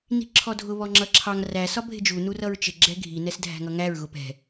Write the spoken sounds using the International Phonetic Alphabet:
ni̤ǁʰɔdʱʊ βɔŋ͡ǁʌǁʰɑŋ ræ sɒbʱɪd͡ʒu nurʌɹt͡ʃɪ ɡ͡ǁɛɡʱi nɛsdʱæ̤ŋʌŋæɹ ɣʊpɛ̤

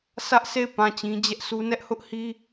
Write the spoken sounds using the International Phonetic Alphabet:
sʰä˦ʔsʰe˦˨ɪ̯ pã˦˨t͡ɕĩ˦ d͡ʑɛ˦ʔsu˦ nɛ˦ʔhʊ˦ʔhi˦

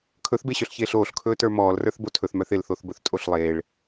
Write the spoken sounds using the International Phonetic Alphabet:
kʰɵθbeɕœɬçeːɬ oːɬkʰɵːtə˞ mɔːlrə˞θbo tʰɵθmœθ ɪlθoθbɵθtʼoɬ lˠeːɭ

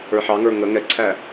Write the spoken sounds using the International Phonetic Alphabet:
ə˞ħɑŋə˞ ŋə ŋɛǀʰæ

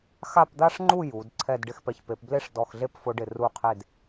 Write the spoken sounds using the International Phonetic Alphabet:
xa˥˧pd̪a˥ʂŋ͡ǃu˥˧ ju˩˧d ǀʰɛ˥˧dɖɪ˥˧xpɛ˧ç pe˩˧pble˥ʂ dɔ˧˩xɮe˥˧p fʊ˧ɖɪ˧˩ ru˧˩qʰe˧˩d

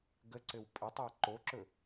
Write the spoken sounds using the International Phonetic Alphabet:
ɡəǀɘw pʼətˤæ ǃoǁɵ

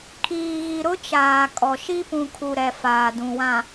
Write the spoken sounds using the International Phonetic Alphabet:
kʰiː˨ɣi˨ɾʊ˦ t͡ʃaː˨kʼɔ˨ʃi˦ pũ˨kʰu˨ɾɛ˨ faː˨dũ˨wã˨

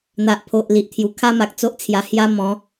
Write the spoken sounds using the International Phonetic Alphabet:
n̪a˨ʔpʰo˨ʔ li˨ʔt̪ʰju˨˩kʰa˦ ma˨k̚t͡so˦ʔt͡sʰja˧ hja˦ mɔ̃˨˦

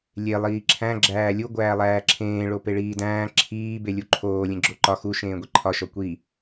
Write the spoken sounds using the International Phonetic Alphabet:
lʲe lˠiːǁʰæ̃ ɡ͡ǁæːlʲu ɡʷæːlˠæːǁʰẽː ɭopeɭiːdæ̃ː ǁʰiː belʲuǃʰoː lʲẽɡ͡ǁoǃɒ xu ʃẽːɡʷiǃʰɒ ʃɒkʷi

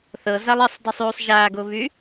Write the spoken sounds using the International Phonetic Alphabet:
θɤzalˠ esˤdˤysˤ ysˤ ʒaɡoβy

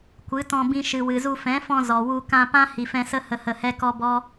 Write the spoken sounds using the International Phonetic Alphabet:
kʷɨ˨˦tɔ̃˧bĩ˧ ʃɨ˨wɨ˨zu˧ fɛ̃˨˦fɔ̃˧ zɔ˨wu˧ kã˧pã˦ hi˨fɛ̃˧sə˦ hə˧hə˧hɛ˦ kɔ˦bɔ˦

